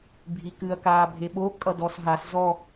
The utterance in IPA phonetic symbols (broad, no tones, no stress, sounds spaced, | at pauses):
bʱ i k ɨ ɐ̯ k aː bʱ e ɓ o kʼ ʌ d ɔ s ɦ a s z ɔ